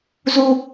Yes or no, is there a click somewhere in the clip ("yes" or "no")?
no